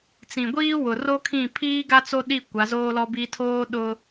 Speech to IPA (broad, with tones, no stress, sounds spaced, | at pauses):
t͡s ĩ˨ ɡʷ iː˦ w ʊ˨ r o˦ kʰ ĩ˦˨ pʰ iː˦ ɡ a˦ t͡s o˦ ɗ i˦˨ kʷ a˨˦ z oː˦ l ɔ˦ b i˦ tʰ oː˦ ɗ ʊ˦